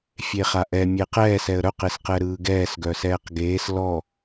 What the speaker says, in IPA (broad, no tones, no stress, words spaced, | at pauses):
fʲeχaʔɛ mʲeqɛːs ɛə̯ɾœq esqɛɾɯːɡɛːs ɡœsɛːqɡeːs lɔ